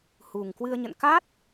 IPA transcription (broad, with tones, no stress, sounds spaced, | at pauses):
h u˨˩ ŋ k w ɨ˧ ə̯ ɲ ə̰˧˨ n k a˦˥ t̚